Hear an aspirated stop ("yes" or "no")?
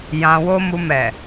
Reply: no